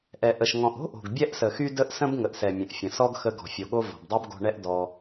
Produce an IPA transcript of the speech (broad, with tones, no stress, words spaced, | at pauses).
ʔɛ˨ ʔə˨ʃ ŋɔ̃˨ʔo̤˦ʔo̤˨ɡ bʲɛ˦ʔsə˨xy˦ də˦ʔsə̃˦bŋə˨ʔsɛ˨ mʲə̃˨ʔfʲə̃˨ sɔ˦ɡxə˧ ɡɔ̤˨fʲo˨ɠo˧ vɔ̤˨bdˤɛ˦bɡo̤˧ɳɛ˦ʔ dɔ˧